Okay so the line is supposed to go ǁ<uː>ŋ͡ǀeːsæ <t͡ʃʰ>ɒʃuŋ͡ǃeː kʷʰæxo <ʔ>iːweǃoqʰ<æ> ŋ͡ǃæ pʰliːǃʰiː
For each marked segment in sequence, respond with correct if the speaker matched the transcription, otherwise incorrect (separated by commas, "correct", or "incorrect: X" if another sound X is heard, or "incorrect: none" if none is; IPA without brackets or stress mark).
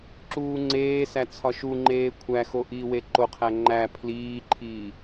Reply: correct, incorrect: t͡sʰ, correct, correct